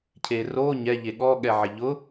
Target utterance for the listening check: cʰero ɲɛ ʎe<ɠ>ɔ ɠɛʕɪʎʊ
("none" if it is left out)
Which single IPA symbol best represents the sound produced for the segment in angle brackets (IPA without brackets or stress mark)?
ɠ